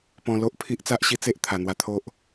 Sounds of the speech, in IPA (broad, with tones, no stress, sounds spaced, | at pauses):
p ɔ̃˧ l o˦ ʔ pʰ i˦ ʔ t͡s a˦ ʔ ɕ i˦ t͡s e˦ ʔ t̪ʰ a˨˩ n̪ w a˧ t̪ʰ o˦ ʔ